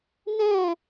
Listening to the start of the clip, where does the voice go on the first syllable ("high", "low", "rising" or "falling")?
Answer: falling